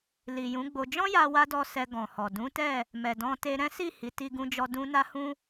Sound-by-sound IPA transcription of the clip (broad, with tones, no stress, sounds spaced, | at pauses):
l i˨ j ũ˨˦ ɡ͡b o˧ d͡ʒ ɔ̃˦ j a˧ w a˧ d ɔ˧ s ɛ˧ ɡ ɔ̃˨ h ɔ˨ d ũ˨˦ t ɛ˦˨ | m ɛ˨ d ɔ̃˧ t e˧ ɾ ɛ̃˦ s i˦˨ h i˨˦ t i˧ ɡ ũ˧ d͡ʒ ɔ˧ d ũ˦ n a˦ h ũ˦